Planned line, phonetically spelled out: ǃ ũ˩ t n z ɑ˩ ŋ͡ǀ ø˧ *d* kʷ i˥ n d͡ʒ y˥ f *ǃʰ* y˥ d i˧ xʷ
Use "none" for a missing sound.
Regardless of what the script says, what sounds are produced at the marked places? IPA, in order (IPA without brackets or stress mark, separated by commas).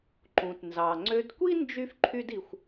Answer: d, ǃʰ